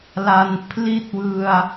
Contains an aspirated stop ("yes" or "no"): yes